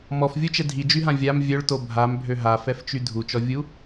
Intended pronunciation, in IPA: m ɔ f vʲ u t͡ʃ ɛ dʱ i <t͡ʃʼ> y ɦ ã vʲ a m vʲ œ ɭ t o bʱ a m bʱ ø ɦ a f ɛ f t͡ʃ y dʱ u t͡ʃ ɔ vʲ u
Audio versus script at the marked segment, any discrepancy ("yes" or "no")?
yes